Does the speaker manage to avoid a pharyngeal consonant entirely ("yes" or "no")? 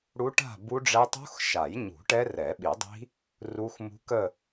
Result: yes